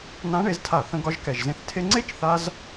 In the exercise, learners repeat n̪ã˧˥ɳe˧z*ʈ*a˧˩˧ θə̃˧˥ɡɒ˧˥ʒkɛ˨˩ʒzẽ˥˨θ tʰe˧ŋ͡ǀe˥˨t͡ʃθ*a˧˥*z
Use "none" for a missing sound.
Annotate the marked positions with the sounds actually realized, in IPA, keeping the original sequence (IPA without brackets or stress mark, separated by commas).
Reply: tʰ, a˧